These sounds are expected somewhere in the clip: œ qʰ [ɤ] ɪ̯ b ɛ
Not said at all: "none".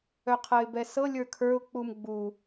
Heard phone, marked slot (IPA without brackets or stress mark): ɤ